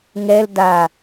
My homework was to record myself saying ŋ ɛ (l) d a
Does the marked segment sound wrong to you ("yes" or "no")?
no